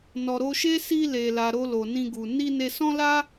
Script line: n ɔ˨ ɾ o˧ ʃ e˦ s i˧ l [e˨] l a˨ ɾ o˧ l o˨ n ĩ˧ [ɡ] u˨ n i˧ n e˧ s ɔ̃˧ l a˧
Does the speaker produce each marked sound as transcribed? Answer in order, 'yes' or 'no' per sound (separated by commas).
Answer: yes, yes